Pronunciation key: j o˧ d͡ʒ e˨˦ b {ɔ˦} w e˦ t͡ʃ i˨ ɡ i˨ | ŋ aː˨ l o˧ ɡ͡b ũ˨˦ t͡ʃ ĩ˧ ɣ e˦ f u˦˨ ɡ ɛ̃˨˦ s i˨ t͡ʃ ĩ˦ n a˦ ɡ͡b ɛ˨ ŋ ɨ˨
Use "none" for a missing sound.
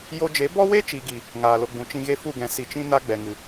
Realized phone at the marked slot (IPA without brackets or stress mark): ɔ˦